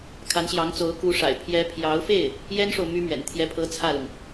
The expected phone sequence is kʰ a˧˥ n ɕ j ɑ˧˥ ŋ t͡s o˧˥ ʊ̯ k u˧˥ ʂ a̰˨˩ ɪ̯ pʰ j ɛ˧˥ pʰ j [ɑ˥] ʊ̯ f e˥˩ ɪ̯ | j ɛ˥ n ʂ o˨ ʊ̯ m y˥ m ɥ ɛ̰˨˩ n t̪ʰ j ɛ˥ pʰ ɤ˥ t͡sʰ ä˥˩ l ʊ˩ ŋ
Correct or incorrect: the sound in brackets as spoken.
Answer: incorrect: ɑ˧˥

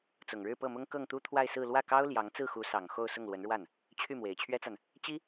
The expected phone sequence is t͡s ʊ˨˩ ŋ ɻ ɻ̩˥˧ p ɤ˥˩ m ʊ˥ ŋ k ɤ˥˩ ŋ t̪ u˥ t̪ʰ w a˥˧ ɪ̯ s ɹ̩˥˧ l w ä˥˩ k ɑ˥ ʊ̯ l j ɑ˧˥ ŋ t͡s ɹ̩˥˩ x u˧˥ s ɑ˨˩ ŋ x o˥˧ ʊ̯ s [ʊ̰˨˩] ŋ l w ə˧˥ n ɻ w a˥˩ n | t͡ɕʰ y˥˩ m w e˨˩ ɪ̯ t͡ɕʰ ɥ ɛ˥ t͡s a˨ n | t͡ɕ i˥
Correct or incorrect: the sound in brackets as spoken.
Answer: incorrect: ʊ˥˩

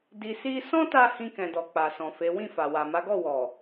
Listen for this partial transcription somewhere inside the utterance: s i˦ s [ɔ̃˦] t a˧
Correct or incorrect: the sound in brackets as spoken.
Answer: correct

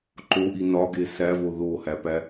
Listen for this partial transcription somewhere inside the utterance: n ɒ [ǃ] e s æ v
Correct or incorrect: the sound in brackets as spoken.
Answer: incorrect: ɡ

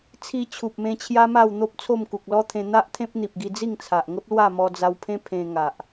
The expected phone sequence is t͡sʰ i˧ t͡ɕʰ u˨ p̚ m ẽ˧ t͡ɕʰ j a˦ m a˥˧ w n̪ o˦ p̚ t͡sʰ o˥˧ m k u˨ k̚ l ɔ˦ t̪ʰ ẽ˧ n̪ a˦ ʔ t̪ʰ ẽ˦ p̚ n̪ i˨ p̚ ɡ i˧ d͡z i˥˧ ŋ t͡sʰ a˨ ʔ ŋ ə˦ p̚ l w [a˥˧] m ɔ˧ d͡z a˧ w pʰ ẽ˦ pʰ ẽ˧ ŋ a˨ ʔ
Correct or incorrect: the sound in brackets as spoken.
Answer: correct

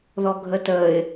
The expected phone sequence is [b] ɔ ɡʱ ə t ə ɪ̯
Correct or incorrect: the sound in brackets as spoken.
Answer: incorrect: ð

